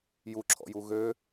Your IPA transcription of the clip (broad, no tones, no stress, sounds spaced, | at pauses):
j u ǁʰ ɔ̰ j u ɣ ø